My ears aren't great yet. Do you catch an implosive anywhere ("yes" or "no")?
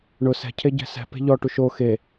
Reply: no